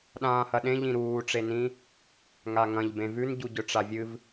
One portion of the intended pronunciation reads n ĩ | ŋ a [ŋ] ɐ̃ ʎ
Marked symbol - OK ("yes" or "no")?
yes